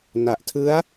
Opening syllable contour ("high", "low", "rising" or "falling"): low